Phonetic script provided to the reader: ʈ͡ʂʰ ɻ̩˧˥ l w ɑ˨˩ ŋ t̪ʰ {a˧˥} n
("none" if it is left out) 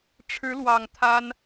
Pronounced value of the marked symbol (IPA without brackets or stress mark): a˥